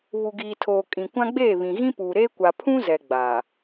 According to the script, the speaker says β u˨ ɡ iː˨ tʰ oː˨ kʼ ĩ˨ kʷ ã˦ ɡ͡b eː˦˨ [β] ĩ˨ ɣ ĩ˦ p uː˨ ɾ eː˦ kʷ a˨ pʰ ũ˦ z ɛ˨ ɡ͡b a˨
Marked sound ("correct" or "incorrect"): correct